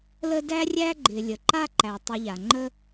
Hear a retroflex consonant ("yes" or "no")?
no